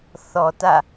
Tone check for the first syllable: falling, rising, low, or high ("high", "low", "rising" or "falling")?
low